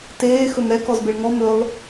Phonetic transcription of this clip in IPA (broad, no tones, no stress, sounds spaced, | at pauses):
t eː x ɵ m ɾ ɛ k ɔ z b e ɭ ŋ ɔ m ɵ lˠ